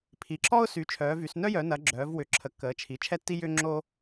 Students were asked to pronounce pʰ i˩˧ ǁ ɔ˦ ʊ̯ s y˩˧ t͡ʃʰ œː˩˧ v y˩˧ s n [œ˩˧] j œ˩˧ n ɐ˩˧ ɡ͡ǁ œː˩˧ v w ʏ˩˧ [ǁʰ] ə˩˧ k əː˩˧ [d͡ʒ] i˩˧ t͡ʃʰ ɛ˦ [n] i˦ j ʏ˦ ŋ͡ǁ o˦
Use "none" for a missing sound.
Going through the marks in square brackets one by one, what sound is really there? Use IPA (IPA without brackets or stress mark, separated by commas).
œ˦, ǁʰ, t͡ʃʰ, tː